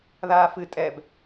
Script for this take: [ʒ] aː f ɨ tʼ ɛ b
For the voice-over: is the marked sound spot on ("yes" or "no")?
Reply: no